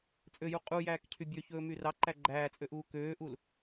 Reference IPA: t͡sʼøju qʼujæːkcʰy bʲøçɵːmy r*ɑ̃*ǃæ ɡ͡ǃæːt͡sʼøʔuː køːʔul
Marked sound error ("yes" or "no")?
yes